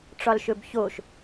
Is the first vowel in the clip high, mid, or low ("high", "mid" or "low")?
low